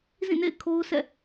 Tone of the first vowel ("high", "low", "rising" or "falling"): falling